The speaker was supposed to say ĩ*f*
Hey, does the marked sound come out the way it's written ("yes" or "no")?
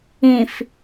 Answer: yes